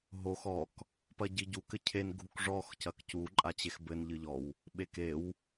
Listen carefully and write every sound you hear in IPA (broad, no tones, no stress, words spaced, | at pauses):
ɦox ɔk | pɐɟiɟuk ɘcʰen ɡʱukʐɔx cɐkcu ǃʼat͡ɕexbɘn ʎɨʎɔw | ɓekew